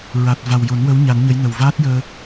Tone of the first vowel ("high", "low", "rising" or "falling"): low